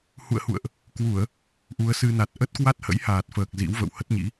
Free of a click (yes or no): yes